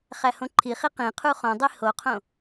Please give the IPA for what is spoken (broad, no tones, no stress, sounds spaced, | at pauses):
χ æ h õ ǃʰ i χ i q ĩ qʰ u χ õ dˤ i h o qʰ õ